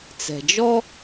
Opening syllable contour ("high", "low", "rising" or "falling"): low